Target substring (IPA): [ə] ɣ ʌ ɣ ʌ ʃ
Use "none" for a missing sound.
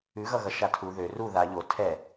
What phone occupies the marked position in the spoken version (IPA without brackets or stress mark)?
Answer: ʉ